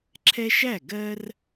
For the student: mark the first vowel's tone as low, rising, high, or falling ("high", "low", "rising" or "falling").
high